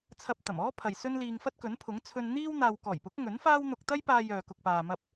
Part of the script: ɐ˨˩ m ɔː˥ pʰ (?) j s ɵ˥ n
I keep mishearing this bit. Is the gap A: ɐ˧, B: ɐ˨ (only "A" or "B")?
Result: B